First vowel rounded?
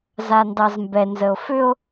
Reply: no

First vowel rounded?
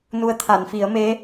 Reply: yes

